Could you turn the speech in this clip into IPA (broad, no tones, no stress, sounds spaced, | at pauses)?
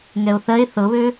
ŋ ɛ o̯ θ ɜ e̯ θ ɤ β ø